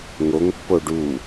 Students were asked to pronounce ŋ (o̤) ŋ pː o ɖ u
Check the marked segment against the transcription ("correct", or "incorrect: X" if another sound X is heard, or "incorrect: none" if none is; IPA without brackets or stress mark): incorrect: o